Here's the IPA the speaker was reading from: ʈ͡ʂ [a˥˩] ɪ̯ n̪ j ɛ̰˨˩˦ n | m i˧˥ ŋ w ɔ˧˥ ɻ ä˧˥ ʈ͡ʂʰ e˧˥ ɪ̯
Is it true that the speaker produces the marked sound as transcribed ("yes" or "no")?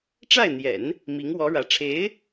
yes